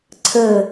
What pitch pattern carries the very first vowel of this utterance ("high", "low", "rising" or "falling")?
falling